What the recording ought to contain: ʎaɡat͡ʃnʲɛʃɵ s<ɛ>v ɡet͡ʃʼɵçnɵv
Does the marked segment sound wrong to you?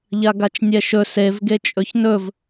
yes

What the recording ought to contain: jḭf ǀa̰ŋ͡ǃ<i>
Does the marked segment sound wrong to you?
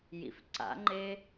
yes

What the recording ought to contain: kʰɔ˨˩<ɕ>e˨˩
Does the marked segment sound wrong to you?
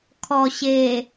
no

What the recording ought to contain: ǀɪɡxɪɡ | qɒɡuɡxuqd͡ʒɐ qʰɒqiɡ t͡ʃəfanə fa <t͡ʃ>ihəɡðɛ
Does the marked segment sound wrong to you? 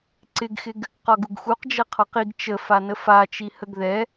no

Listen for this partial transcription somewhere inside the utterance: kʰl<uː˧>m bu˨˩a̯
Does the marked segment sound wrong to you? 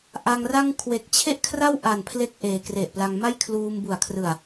no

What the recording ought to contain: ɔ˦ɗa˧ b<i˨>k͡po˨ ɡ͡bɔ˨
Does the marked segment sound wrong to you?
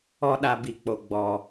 no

